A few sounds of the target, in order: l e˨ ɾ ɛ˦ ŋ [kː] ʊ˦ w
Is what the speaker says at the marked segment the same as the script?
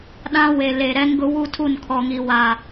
no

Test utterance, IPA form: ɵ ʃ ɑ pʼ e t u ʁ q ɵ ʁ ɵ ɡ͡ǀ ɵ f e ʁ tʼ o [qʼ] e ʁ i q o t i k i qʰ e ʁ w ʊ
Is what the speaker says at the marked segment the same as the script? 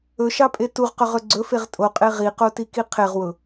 yes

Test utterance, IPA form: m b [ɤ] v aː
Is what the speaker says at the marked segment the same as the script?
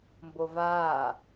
no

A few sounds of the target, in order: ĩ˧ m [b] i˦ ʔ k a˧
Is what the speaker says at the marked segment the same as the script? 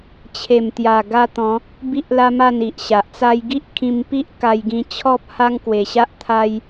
no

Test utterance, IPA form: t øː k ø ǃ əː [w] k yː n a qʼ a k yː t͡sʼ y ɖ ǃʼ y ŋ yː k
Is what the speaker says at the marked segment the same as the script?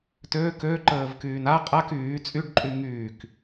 no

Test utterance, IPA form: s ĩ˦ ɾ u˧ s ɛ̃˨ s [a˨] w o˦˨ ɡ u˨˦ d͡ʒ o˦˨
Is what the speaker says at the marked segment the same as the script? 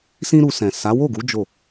no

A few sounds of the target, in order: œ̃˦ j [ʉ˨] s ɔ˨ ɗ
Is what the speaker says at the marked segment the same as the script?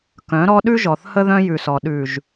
yes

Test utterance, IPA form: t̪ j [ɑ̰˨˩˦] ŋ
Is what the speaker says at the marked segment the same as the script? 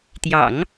yes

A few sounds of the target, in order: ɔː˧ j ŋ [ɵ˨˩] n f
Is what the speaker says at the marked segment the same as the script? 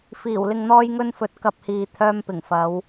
no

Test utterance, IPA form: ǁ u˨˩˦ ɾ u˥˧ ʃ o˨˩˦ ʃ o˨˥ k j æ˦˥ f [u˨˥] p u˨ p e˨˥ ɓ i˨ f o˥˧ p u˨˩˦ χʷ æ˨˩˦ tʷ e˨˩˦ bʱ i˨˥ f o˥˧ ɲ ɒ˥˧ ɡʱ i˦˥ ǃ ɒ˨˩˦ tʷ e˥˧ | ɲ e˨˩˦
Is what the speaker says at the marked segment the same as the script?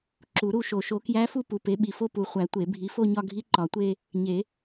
no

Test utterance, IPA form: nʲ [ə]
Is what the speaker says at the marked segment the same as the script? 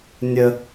yes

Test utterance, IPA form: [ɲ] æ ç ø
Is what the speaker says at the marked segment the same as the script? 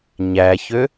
yes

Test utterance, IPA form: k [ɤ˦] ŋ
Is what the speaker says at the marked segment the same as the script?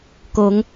no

